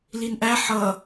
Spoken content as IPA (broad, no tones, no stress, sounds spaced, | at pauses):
l i n ʔ æ ħ ʌ